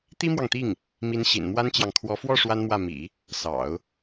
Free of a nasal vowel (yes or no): yes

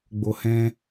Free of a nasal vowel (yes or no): no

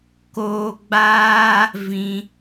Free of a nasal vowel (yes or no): no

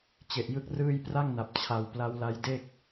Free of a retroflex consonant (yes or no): yes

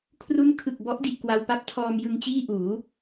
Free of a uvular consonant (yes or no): yes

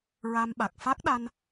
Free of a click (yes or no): yes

